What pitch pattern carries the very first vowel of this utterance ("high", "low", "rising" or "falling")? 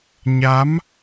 rising